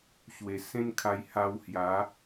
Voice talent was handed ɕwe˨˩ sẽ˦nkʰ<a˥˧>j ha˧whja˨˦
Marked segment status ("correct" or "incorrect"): incorrect